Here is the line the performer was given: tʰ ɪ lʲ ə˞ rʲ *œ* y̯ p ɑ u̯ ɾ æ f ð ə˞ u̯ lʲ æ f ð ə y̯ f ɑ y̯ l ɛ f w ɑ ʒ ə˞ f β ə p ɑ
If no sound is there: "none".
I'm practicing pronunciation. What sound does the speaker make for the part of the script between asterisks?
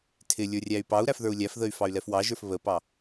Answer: æ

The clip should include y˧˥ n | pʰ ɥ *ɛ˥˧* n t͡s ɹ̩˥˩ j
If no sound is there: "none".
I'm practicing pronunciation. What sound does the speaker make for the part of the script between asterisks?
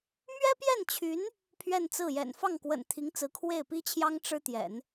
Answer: ɛ˥˧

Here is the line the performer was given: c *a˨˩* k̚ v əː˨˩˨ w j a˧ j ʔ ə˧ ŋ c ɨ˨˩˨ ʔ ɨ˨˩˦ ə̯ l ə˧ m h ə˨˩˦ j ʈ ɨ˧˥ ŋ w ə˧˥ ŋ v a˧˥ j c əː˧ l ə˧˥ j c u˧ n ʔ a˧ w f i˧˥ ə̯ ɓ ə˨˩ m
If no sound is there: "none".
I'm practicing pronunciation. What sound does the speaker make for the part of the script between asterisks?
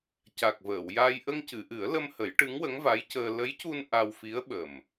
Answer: a˨˩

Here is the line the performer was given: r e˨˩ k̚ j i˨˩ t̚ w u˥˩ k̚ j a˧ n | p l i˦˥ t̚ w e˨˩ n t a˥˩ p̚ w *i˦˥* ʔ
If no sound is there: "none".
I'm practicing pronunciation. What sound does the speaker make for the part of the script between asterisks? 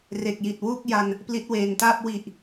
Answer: i˨˩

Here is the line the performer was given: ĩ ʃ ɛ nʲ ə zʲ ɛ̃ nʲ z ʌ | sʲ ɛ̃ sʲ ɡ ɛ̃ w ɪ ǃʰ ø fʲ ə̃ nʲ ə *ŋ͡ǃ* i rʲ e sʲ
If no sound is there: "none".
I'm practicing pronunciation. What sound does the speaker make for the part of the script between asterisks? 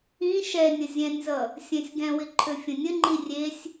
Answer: ŋ͡ǃ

